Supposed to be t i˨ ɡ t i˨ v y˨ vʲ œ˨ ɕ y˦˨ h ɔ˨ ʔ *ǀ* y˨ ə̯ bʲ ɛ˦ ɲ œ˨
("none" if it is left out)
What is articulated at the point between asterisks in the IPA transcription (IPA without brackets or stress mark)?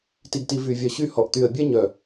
t̪